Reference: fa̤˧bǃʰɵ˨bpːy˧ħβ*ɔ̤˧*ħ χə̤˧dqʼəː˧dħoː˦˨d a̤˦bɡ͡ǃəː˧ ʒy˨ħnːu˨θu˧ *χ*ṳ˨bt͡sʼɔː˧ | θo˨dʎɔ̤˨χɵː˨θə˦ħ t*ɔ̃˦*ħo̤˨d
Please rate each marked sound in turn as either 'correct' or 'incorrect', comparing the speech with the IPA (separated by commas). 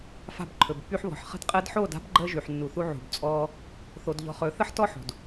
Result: incorrect, incorrect, incorrect